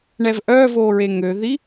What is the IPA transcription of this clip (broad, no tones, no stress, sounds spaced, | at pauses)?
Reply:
ɳ ɛ v ʔ œ v oː ɹ e ŋ ø ð i